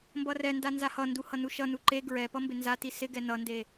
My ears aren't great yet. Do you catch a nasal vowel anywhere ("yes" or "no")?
no